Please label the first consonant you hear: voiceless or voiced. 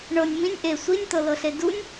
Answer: voiced